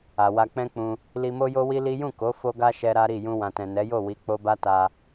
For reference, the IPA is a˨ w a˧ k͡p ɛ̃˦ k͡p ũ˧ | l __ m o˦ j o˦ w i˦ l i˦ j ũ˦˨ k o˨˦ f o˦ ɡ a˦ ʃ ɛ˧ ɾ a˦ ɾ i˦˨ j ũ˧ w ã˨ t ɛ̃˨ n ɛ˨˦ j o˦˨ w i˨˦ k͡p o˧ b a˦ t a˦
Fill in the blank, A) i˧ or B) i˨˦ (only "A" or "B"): A